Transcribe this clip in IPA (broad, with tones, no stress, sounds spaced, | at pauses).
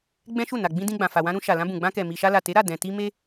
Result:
ɡ͡b ɛ̃˦ ʃ u˦˨ n a˨ ɡ͡b ĩ˧ d ĩ˧ ɡ͡b ã˨ f a˨ w ã˧ ɾ ũ˧ ʃ a˨ l ã˧ b ũ˨ ɡ͡b ã˧ k ɛ˨ m i˨ ʃ a˧ l a˨ t e˨˦ ɾ a˦˨ d ɛ̃˨ t i˧ m e˦